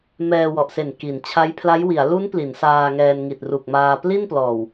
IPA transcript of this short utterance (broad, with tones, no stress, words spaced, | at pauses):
mɛː˧wɔ˨˩ʔse˨˩n ki˩˦nt͡ɕʰa˦˥j pʰla˦˥jwi˩˦a̯ lu˦˥n pli˩˦nsaː˧ŋɛː˧n ŋi˨˩t̚ru˨˩k̚maː˧ pli˥˩nplɔː˨˩w